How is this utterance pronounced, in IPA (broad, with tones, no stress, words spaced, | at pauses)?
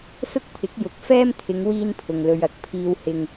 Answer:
sʊ˥k̚t̪ʰɪ˨˥k̚ jʊ˨˥k̚ fɛː˥mt̪ʰɪ˨˧ŋ wiː˥npʰʊ˨ŋlɵ˧ɥ ɐ˨˥k̚pʰiː˧whɪ˧ŋ